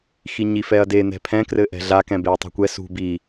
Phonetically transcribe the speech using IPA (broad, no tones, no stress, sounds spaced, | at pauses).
x i ɲ i f ɛ ɐ̯ d e n̪ ɛ̤ pʰ ɛ̃ k r ɘ ʔ ɛ̤ ɮ a k ɛ̃ b e ɐ̯ tˤ ṳ kʷ ɛ s ṳ b i